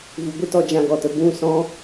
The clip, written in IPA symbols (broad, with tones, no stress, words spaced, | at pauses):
vu˧ɡʷɨ˦tɔ˧ d͡ʒã˧ɡɔ˨tə˧ bũ˦˨sɔ̃˦